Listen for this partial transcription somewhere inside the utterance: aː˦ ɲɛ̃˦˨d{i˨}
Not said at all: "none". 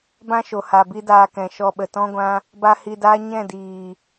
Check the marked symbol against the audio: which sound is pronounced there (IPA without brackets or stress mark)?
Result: iː˨